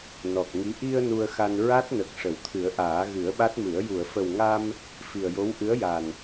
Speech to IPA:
nɔ˨˩k̚ŋi˧˥ ʔi˧ə̯ nu˧ə̯xa˧n ɹa˦˥t̚nə˨˩k̚ ʂə˨˩˨wt̪ʰɨ˨˩˦ə̯ʔaː˨˩˦ ɣɨ˨˩˦ə̯ɓa˦˥t̚mɨ˨˩˦ə̯ ju˨˩˨ə̯fə˨˩wŋa˧m | fi˨˩ə̯jo˧˥w ʔɨ˧˥ə̯ja˨˩n

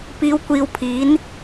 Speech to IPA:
piː˨˧wkʷiː˨w pʰiː˨˥n

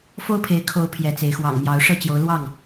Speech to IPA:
fo˦ʊ̯pʰe˨˦ɪ̯ kʰo˨˦ʊ̯ pʰjɛ˨˦t͡se˨˦ɪ̯ xwɑ̰˨˩ŋmjɑ˨˦ʊ̯ ʂɤ˥˨t͡ɕjo˨˦ʊ̯lwɑ˥˨ŋ

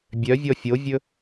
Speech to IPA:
bʲœvʲɔ fʲovʲɵ

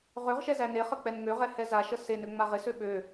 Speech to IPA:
ʁøʁʃɛ zæneχə k͡pɛnŋøʁɛ hɛzaʃə senø ŋ͡maʁɪsø ɓø

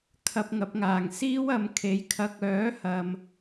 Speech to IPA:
kʰɐ˧p̚ŋɐ˨˥p̚ŋaː˨˩ŋ siː˥wɐ˨˧m kʰe˨˧jkʰɐ˧k̚ œː˨˥hɐ˨m

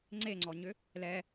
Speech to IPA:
ŋ͡ǀeŋ͡ǀɔɲʏ | lɛ

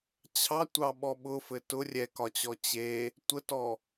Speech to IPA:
t͡ɕʰɑtʷɑɓɔ ɓʊfɘ tʊ rʲɛkɒt͡ɕɔ t͡ɕe | tʷətɔ

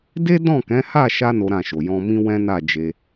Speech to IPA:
de˦dɔ̃˦˨ kɛ̃˨˦ha˦˨ʃa˧ no˦ɾã˦˨ʃo˨ jɔ̃˧mĩ˦ wɛ̃˦na˦˨d͡ʒe˧

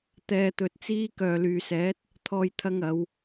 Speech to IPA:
t̪ɛː˧t̪ɵ˨t̚t͡siː˥ kœː˨lyː˨sɛː˨˥t̚ | t̪ʰɔː˧jt̪ʰɐ˧ŋɐ˨˧w

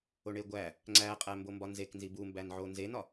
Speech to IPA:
oɳeɡʷæ | ŋ͡ǀæqʼæ mbombɒnzek nzibumbænʕo nzenɒ

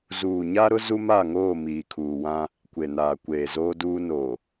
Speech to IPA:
zuː˨ɲa˦ɾʊ˦ zu˦ma˦˨ŋoː˦˨ miː˨kʰuː˨ wã˦ | kʷe˨naː˨ kʷeː˨zoː˦duː˦noː˨

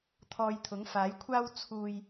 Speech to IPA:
t̪ʰɔː˧jt̪ʰʊ˨˥ŋfaː˨˥jkʷʰaː˥w t͡sʰuː˨j

